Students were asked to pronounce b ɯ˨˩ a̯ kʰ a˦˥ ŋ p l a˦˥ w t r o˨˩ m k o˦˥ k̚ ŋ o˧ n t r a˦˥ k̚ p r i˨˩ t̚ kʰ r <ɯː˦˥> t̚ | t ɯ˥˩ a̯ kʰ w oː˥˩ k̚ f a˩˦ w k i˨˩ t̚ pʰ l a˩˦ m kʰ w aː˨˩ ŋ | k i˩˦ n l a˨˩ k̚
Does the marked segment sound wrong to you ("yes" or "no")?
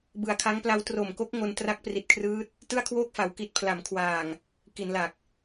no